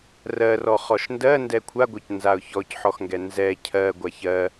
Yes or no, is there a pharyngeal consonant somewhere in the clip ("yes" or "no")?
yes